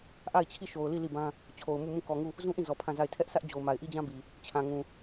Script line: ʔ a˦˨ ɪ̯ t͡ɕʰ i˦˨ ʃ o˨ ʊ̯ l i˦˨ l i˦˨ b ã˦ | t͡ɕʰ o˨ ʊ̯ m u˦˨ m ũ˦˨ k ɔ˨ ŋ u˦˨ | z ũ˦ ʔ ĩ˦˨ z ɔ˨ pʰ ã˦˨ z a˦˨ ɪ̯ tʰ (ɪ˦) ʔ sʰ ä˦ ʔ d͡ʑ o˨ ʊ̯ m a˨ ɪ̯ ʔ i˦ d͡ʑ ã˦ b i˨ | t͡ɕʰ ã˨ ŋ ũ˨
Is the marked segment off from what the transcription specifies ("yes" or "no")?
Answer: yes